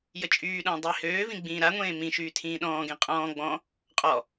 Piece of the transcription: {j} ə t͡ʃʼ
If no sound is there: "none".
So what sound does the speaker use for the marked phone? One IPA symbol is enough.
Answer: j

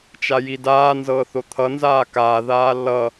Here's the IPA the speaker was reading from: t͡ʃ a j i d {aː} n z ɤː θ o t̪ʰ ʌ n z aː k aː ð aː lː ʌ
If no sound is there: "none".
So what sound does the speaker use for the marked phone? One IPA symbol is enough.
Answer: aː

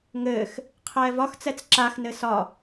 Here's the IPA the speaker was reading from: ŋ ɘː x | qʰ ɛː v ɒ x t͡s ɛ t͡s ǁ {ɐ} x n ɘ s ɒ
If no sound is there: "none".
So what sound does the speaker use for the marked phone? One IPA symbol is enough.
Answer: a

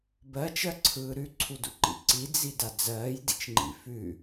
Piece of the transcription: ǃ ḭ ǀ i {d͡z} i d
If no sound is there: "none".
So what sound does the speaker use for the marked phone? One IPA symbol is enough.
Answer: d͡z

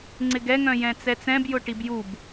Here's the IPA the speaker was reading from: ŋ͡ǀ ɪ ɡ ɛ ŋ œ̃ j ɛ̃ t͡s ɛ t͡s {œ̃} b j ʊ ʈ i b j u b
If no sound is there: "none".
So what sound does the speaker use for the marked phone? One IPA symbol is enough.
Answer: ɛ̃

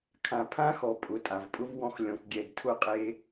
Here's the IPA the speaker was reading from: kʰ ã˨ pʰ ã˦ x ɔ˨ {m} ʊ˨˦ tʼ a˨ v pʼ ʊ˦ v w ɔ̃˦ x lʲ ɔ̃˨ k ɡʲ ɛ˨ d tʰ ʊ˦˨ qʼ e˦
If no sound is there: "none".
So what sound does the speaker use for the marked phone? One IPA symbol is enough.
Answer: pʼ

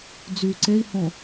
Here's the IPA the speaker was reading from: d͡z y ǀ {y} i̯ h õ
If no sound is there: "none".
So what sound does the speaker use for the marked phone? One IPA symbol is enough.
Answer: e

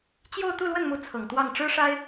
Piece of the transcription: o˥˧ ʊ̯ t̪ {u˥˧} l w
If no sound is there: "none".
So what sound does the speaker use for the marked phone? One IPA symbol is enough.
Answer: u˥˧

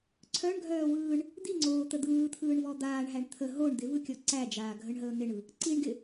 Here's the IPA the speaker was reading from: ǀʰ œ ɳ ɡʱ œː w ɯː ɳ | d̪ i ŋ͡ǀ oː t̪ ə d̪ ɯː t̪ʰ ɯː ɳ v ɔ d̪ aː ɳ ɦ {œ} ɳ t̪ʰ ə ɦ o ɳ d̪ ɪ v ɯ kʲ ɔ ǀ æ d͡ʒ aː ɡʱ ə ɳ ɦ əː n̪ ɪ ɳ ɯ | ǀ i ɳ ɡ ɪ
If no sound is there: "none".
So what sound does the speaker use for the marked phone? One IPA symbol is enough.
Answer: æ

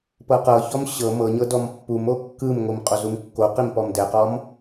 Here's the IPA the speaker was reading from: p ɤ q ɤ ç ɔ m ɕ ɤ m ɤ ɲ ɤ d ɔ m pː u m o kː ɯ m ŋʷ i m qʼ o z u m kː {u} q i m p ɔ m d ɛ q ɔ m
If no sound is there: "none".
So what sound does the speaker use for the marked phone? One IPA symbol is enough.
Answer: o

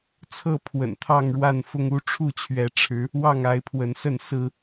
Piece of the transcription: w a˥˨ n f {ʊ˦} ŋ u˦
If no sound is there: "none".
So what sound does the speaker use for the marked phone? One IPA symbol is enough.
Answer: ʊ˦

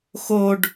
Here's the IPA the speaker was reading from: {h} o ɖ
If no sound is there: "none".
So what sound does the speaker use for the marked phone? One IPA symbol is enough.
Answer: x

